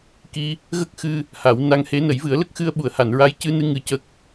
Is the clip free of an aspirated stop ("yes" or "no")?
yes